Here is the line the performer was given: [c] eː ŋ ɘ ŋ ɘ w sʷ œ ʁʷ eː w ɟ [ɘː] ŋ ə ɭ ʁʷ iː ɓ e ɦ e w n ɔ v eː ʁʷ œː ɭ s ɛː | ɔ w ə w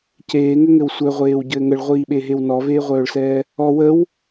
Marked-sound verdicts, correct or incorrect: correct, correct

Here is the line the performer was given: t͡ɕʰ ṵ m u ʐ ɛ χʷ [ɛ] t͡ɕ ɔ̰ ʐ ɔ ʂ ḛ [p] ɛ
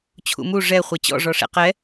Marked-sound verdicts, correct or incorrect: correct, incorrect: q

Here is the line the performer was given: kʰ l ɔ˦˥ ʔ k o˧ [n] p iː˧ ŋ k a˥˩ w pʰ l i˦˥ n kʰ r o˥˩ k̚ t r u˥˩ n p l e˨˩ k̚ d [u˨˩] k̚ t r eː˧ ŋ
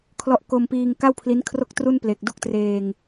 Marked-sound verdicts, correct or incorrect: incorrect: m, incorrect: u˥˩

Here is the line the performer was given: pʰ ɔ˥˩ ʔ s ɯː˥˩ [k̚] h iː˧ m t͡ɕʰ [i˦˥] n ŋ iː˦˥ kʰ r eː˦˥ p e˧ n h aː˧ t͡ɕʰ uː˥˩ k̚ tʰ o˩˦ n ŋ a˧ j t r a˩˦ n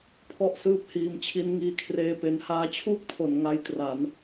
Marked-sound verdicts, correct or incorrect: incorrect: p̚, correct

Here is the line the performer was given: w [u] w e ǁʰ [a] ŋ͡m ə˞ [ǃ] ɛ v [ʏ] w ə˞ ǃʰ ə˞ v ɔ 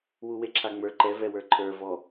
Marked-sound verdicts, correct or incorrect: correct, correct, correct, incorrect: ɛ

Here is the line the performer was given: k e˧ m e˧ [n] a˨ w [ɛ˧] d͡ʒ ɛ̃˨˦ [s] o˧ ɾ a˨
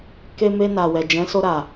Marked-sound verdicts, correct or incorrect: correct, incorrect: ɛ˨, correct

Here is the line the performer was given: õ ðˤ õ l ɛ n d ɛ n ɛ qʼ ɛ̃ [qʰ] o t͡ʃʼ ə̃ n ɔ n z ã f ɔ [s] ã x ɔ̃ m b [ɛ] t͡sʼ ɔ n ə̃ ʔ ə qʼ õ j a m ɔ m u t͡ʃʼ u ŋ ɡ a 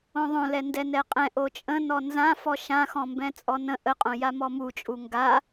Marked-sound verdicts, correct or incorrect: incorrect: ʔ, incorrect: ʃ, incorrect: ɛ̃

